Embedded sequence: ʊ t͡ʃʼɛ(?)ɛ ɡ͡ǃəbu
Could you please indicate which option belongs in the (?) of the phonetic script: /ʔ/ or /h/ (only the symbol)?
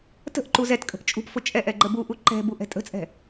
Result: ʔ